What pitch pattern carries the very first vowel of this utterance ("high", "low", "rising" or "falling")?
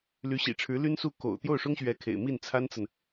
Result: rising